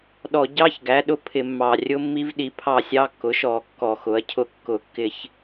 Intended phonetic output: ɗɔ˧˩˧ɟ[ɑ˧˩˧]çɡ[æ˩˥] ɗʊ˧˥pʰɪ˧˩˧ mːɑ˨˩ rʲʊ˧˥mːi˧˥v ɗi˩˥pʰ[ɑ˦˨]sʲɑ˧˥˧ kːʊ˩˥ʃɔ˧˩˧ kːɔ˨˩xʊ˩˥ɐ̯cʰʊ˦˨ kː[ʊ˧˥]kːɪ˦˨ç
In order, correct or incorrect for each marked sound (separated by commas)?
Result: incorrect, correct, correct, incorrect